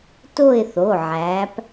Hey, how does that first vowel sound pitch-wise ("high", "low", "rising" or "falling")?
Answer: falling